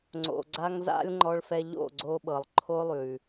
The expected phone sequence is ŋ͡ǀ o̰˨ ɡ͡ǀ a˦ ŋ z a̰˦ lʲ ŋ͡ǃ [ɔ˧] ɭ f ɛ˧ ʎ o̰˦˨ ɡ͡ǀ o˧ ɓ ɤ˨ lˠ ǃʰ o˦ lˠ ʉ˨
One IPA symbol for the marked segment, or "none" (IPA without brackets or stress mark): ɔ˧